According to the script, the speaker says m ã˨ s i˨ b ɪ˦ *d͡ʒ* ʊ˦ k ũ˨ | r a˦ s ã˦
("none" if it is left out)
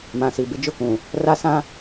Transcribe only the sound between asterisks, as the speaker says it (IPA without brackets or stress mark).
d͡ʒ